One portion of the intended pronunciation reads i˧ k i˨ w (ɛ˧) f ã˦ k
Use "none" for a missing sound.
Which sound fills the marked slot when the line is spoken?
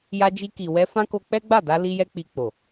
ɛ˧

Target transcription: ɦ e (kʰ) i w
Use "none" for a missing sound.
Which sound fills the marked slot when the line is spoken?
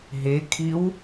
kʰ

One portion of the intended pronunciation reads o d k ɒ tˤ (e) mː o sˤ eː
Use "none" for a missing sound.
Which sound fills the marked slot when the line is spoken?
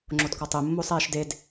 e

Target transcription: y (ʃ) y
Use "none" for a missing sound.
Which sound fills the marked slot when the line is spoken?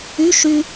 ʃ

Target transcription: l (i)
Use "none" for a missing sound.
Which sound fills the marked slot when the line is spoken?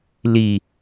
i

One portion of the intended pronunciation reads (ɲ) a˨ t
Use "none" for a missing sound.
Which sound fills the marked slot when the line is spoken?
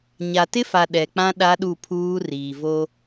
ɲ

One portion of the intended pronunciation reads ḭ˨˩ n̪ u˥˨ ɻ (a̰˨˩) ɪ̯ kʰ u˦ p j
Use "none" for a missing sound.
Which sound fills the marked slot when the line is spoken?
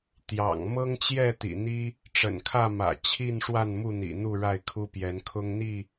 a˥˨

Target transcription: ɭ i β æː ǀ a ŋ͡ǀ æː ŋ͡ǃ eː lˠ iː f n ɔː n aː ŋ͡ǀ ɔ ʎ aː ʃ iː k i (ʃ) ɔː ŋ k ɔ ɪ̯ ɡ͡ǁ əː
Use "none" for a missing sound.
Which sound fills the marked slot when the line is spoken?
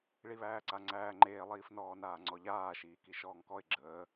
ʃ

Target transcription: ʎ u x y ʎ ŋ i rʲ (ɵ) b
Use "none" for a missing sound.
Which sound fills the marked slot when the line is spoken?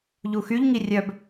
œ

